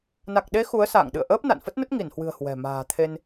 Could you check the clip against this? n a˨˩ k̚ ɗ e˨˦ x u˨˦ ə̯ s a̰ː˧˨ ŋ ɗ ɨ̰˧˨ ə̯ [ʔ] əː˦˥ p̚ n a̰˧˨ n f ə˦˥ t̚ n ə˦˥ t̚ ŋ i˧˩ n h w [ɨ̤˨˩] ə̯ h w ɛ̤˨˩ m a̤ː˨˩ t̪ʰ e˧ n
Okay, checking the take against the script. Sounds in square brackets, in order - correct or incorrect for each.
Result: correct, correct

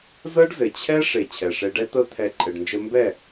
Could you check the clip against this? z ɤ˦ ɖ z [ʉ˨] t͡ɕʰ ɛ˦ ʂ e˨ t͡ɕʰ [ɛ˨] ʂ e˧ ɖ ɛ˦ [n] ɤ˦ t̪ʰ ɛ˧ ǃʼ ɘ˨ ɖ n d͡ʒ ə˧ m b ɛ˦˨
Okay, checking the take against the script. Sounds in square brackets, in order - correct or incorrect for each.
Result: incorrect: ɘ˨, correct, incorrect: t̪

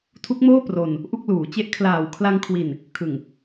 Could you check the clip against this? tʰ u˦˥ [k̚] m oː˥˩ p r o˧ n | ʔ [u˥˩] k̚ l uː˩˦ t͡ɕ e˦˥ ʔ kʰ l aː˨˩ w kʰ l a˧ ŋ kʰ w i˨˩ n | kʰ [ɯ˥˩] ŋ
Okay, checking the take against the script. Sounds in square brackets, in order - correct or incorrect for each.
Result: correct, correct, incorrect: ɯ˨˩

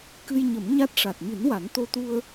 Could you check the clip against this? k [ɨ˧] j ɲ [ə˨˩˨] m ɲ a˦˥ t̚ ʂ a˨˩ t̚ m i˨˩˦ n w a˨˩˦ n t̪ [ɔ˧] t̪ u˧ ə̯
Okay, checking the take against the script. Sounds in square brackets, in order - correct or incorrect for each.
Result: correct, incorrect: ə˨˩˦, incorrect: o˧

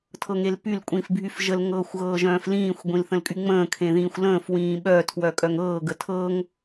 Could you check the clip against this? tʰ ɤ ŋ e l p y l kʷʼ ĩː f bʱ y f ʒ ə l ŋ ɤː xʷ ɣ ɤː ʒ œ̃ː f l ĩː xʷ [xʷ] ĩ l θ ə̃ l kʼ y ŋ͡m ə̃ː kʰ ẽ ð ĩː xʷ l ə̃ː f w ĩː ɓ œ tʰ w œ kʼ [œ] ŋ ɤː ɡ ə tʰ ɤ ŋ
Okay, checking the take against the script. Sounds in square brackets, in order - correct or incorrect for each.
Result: incorrect: ɡʷ, correct

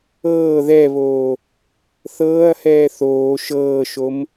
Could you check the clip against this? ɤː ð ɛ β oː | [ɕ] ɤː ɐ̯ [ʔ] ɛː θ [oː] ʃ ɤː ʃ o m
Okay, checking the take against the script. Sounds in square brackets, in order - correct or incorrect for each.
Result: incorrect: θ, incorrect: h, correct

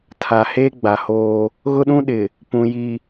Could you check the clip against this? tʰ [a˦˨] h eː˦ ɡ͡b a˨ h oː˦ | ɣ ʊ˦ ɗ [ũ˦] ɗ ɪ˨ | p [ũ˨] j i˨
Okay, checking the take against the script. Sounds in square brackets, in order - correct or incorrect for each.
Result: incorrect: a˨, correct, correct

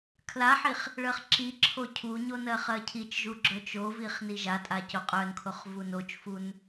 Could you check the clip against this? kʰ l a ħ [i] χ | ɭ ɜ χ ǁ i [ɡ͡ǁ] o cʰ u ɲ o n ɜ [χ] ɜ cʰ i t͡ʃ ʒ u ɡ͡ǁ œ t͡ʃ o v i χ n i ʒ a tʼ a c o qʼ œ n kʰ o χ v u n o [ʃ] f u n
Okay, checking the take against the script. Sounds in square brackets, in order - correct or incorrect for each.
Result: correct, incorrect: ǁʰ, correct, incorrect: t͡ʃ

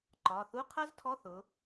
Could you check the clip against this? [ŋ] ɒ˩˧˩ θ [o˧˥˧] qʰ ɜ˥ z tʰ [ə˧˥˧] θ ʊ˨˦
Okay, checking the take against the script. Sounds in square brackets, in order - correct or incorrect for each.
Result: incorrect: ǃ, incorrect: u˧˥˧, incorrect: ɔ˧˥˧

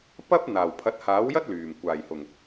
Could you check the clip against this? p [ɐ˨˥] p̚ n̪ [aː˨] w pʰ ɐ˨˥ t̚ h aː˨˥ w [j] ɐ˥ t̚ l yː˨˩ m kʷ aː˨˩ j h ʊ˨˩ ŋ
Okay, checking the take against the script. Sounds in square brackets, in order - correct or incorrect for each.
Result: incorrect: ɐ˥, incorrect: aː˨˩, correct

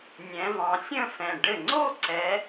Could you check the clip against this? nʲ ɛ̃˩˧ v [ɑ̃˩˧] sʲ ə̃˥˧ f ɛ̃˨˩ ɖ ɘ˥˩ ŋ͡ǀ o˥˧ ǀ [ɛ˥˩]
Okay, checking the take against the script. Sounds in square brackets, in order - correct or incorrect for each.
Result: correct, incorrect: ɛ˩˧

